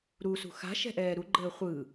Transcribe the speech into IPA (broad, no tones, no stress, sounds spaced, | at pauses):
ɾ u s ṳ x a̤ ʃ ɛ̤ ʔ ɛː ɾ u ɡ͡ǃ əː χʷ ɯ